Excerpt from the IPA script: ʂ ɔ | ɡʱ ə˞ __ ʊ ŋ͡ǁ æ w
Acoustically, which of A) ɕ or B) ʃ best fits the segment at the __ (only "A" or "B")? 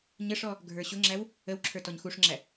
A